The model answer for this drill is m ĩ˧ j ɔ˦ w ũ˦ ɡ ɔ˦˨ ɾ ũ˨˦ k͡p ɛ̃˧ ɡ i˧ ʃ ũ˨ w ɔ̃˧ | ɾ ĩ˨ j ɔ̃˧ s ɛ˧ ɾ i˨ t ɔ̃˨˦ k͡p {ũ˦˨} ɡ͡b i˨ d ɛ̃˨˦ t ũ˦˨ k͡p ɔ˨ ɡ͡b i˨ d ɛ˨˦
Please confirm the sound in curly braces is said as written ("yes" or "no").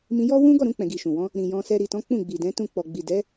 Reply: yes